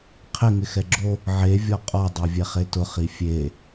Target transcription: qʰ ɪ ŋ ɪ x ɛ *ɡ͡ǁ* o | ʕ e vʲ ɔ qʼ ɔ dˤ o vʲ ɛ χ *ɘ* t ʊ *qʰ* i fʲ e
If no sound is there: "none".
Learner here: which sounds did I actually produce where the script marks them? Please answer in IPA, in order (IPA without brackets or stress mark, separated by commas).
ɡ͡ǁ, e, χ